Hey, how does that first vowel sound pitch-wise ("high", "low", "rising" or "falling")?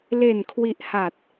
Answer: low